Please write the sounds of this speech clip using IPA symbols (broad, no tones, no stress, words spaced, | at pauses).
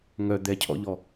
ŋœ d̪ɛcʰɔ̰ʎɔ